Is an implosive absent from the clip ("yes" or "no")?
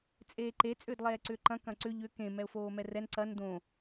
yes